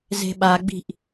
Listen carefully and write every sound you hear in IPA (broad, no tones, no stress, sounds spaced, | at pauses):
z e̤ ɓ a ɡ͡b i̤ ʔ